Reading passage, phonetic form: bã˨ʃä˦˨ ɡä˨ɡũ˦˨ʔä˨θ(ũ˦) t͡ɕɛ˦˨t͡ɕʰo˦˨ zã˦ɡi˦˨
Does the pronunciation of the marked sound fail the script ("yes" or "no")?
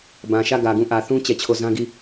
no